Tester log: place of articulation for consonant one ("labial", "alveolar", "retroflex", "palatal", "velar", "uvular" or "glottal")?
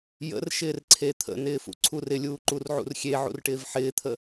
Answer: palatal